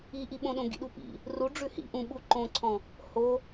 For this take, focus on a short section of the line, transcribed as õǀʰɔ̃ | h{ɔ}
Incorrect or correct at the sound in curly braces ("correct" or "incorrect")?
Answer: incorrect